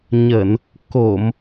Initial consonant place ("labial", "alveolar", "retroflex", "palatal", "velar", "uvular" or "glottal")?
palatal